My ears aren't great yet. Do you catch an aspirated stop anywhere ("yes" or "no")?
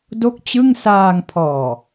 yes